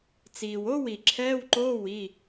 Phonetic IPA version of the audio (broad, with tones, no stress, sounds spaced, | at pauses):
t͡s iː˩ w o˧˥˧ w i˩ ǁʰ ɛː˧˥˧ w ǃ oː˧˥˧ w i˩˧˩